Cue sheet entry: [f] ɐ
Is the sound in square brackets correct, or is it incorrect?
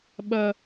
incorrect: ɓ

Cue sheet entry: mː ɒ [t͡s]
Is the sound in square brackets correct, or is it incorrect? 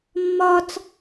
correct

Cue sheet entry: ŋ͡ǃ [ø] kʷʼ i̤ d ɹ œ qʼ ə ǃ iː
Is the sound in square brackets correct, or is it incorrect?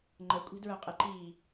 incorrect: ə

